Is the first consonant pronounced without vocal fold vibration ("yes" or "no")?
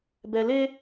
no